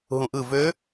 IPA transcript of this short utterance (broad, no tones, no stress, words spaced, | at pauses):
ɦũʔɯ vø